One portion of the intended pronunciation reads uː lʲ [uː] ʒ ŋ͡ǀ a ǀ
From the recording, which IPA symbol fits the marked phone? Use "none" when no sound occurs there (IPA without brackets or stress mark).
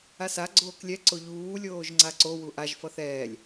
oː